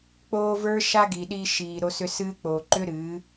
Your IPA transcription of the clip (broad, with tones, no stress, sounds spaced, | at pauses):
k͡p oː˧ v ə˞˦ ʃ a˦ ɡ i˨ ɗ i˧ ʃ iː˨ ɾ o˧ s ʏ˧ s ɨː˦ k͡p oː˨ ǃ ʏ˦ ɾ ɨː˨˦